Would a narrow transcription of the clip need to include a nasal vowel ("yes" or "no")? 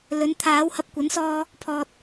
no